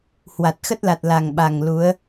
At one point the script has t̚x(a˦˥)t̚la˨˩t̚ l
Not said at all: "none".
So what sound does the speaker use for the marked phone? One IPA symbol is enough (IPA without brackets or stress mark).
ə˦˥